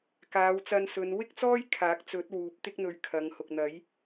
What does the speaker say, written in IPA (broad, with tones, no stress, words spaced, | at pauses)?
kaː˨˧wt͡sɐ˧nsɵ˨˧n wɪ˥k̚t͡sɔː˥j kʰaː˨˥k̚t͡sɵ˨˥t̚ wuː˨˥p̚t̪ɪ˥k̚ n̪ɵ˨ɥ kʰɐ˨˧ŋhʊ˨k̚ n̪ɐ˨˥j